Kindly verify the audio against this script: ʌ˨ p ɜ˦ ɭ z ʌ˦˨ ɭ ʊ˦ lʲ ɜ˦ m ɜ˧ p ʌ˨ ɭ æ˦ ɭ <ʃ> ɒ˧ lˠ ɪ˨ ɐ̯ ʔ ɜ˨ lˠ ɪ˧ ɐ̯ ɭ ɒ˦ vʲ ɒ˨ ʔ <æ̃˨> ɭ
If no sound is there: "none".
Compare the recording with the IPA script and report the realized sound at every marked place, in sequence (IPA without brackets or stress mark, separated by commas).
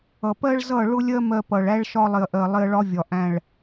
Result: ʃ, æ̃˨